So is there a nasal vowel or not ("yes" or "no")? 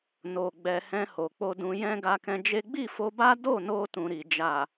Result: yes